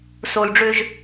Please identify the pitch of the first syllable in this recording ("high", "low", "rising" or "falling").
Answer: low